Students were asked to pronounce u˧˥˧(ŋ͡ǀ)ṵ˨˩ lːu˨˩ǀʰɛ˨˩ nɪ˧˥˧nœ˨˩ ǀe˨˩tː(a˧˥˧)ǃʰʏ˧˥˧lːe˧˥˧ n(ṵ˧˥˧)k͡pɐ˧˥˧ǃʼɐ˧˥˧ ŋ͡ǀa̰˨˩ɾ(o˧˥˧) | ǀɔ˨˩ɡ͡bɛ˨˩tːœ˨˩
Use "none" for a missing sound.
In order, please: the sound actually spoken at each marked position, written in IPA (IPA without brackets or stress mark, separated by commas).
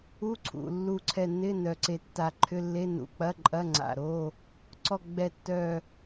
ǀʰ, a˨˩, ṵ˨˩, o˧˥˧